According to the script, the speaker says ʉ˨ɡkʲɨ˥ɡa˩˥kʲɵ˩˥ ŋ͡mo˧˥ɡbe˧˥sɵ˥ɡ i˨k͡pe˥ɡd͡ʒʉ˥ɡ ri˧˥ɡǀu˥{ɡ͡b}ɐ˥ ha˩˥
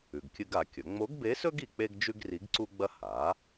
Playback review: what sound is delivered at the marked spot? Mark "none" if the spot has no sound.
ɡ͡b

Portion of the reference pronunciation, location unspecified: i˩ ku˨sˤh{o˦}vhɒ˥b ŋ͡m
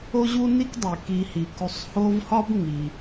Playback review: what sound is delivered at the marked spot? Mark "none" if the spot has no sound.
o˦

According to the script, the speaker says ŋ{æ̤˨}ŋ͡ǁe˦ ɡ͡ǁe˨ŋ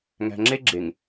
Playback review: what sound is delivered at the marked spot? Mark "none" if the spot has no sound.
æ̤˨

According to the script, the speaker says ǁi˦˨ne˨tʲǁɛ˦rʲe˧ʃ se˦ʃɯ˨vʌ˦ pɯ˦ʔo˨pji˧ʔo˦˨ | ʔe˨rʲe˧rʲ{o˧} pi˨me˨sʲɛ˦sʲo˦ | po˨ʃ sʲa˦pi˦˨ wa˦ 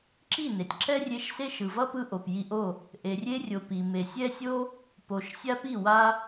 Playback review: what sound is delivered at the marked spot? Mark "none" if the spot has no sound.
o˨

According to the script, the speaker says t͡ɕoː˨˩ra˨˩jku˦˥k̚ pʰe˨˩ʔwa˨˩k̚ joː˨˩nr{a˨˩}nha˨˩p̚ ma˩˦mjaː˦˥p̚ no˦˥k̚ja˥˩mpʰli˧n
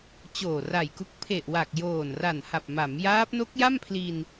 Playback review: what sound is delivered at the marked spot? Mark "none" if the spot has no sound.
a˨˩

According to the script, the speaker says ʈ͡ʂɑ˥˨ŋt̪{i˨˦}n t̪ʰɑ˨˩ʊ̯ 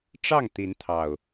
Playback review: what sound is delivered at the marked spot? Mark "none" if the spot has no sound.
i˨˦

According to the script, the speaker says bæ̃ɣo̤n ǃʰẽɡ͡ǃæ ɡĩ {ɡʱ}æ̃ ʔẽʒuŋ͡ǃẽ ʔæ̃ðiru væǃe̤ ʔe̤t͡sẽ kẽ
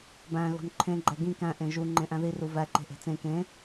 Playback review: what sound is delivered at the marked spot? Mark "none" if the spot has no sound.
k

